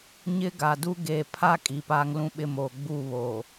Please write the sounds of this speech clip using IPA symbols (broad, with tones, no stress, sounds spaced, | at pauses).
ɲ ɪ˦ ɡ a˨ d u˦ ɡ eː˨ pʰ a˦ kʼ i˨ p aː˦ ŋ l ũ˦ ɓ ɪ˦ m oː˨ ɡ͡b u˦˨ β oː˨